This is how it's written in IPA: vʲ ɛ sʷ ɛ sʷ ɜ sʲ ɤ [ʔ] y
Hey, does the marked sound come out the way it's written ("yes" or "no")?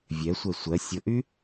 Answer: yes